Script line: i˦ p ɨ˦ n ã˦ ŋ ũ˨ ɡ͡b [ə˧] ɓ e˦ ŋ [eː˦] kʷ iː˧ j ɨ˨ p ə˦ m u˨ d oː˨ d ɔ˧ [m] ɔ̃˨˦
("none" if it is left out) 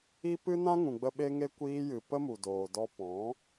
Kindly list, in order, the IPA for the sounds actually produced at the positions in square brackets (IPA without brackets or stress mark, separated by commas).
ə˧, e˦, p